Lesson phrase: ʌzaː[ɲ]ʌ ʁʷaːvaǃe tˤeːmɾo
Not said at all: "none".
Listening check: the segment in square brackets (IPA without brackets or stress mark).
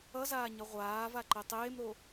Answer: ɲ